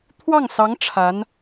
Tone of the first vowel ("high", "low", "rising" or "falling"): falling